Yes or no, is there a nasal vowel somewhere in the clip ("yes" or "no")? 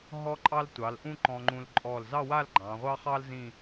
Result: yes